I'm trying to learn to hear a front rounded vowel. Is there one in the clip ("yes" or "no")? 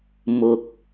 no